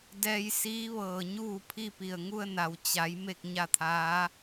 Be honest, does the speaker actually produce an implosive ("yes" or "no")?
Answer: no